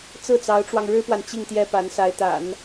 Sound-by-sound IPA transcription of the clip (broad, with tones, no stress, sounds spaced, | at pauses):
t͡s ɹ̩˥˩ t͡s ɑ˧˥ ʊ̯ ʈ͡ʂ w ɑ˧ ŋ ɻ ɻ̩˥ p w a˨ n t͡ɕ i˥˩ ŋ t̪ j ɛ˥ p a˧˥ n s a˧˥ ɪ̯ t̪ a̰˨˩˦ n